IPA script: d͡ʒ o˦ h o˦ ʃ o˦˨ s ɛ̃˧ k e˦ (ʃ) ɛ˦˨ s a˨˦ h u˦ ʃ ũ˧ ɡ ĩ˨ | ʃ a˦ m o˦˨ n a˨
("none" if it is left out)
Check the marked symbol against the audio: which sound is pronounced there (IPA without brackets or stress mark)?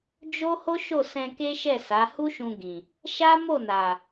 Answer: ʃ